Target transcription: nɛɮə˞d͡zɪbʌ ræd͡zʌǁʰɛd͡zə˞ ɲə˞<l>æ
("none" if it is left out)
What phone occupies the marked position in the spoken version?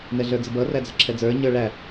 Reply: ɭ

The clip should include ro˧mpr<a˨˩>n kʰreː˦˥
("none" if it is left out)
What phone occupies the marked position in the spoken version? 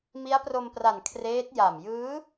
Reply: a˨˩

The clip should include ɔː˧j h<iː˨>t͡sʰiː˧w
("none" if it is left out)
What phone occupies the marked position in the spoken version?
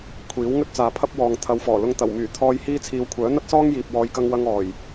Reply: iː˥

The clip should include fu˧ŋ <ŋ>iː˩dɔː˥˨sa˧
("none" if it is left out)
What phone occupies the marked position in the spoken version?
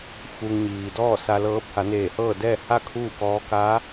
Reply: ɲ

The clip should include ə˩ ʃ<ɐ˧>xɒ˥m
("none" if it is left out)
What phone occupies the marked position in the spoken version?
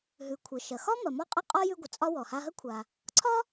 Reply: ɐ˩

